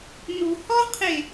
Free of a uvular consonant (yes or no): no